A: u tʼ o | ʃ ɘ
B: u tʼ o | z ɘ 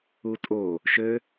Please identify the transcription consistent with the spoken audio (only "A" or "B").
A